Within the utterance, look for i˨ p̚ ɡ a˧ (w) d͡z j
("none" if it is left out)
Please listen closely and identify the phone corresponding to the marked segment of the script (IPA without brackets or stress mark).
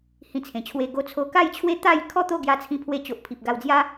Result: w